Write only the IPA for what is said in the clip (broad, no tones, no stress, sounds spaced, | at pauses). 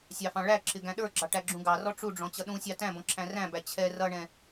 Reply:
sʲ ɑ f ɑ̃ ɭ æ ǁʰ ɪ ɡ æ̃ ɗ ə˞ ɡ͡ǁ ɑ ʈ æ ɡ͡ǁ ũ ɡ ɑ r ɔ ʈ͡ʂ u ɖ͡ʐ ɔ̃ t͡ɕ ʌ ɗ ũ sʲ ɑ t æ̃ b ɔ̃ ǁʰ æ̃ r æ̃ b æ t͡ɕʰ ɛ r ʌ ɳ ɛ̃